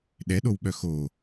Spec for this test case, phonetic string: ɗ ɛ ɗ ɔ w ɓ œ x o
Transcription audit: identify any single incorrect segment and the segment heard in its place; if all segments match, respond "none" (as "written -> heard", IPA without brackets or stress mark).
ɔ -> o